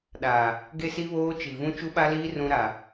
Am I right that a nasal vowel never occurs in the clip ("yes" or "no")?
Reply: no